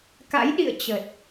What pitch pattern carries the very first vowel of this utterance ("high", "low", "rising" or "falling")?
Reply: rising